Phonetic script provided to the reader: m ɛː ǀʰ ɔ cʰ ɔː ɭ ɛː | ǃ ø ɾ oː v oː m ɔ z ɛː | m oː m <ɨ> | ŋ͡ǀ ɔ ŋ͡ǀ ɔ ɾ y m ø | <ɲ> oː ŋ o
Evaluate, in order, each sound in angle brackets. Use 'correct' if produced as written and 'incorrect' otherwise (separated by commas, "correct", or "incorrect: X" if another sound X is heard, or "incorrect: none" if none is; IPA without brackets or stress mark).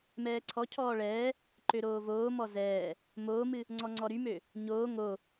correct, correct